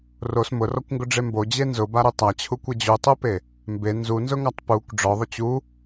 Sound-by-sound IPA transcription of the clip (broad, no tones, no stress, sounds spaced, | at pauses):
r o s m ʊ r ɔ kʷ ŋ ɡ ʊ ɖ͡ʐ e m b o d͡ʑ e n z ʊ b a ɾ u tˤ a t͡ɕʰ u kʷ e d͡ʑ u tˤ u p e | m b e n z u n z ʊ ŋ a tˤ p u kʷ ɖ͡ʐ ɔ ðˤ ʊ t͡ɕ u